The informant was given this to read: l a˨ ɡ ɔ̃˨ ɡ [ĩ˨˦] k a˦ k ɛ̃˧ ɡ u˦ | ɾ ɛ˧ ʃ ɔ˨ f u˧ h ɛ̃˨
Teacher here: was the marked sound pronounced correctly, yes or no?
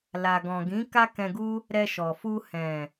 yes